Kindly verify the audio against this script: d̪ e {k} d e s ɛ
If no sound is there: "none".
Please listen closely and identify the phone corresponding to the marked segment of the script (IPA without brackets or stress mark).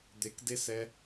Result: k